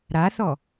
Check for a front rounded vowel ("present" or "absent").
absent